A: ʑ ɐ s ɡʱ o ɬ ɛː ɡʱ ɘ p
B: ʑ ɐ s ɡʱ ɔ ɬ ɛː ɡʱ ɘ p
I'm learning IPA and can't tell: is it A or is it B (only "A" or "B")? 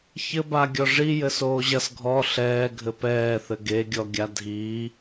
B